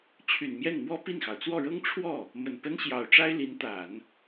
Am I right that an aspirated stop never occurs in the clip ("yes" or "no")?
no